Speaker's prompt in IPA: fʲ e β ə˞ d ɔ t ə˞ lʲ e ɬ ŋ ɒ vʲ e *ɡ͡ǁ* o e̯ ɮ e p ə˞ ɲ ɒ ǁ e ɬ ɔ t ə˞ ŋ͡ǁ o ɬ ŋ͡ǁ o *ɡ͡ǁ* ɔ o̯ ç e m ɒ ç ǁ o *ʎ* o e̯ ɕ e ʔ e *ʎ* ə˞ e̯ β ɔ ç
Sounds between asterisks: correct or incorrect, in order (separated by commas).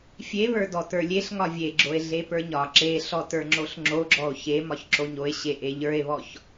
correct, correct, incorrect, correct